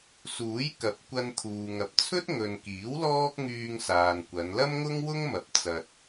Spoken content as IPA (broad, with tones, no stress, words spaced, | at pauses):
suː˨˥jkɐ˨p̚kʷɐ˧nt̪ʰuː˨ ŋɐ˨p̚t͡sʰɵ˥t̚ŋɵ˨nkiː˨˥w lɔː˥k̚ŋyː˧ŋsaː˨nkʷɐ˨˧n lɐ˥mŋʊ˥ŋwʊ˥ŋmɐ˨˥p̚ t͡sɐ˧t̚